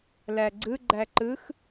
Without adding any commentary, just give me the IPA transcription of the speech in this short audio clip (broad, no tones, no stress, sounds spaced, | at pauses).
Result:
l æ ɡ͡ǀ ɯ ɡ͡ǃ æ ǃ ɯ x